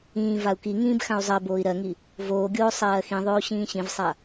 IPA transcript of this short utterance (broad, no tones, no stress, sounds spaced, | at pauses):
ĩː v a u̯ k i ŋ ĩː b x ã u̯ zˤ ɜ b oː i̯ ɾ ɜ ŋ i | v oː ɡʲ oː sˤ ɜː x ĩ ðˤ oː ɕ ĩː ɕ ĩ v sˤ a